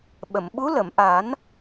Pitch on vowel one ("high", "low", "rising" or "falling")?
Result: low